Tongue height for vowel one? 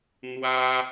low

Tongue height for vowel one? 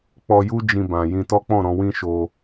mid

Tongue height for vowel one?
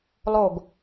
mid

